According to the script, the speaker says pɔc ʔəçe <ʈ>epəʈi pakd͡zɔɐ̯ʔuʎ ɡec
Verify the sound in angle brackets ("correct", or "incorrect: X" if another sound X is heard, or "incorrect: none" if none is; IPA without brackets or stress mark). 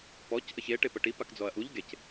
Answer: correct